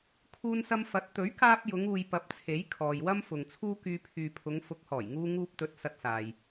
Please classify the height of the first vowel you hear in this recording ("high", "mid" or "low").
high